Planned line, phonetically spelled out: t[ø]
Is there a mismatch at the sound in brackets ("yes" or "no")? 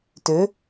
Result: no